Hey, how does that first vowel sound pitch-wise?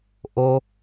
high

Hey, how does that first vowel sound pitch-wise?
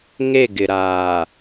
falling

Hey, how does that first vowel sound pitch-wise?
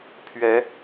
rising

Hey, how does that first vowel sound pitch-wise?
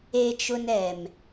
high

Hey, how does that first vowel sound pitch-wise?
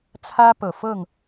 high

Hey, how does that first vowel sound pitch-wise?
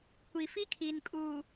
low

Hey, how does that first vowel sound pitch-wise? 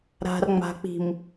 low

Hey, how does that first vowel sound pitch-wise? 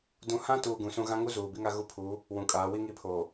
rising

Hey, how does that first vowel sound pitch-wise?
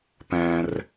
low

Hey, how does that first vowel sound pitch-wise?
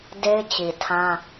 high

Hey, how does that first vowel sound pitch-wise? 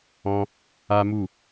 high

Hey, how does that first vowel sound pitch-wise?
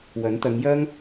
rising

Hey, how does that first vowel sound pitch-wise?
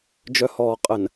low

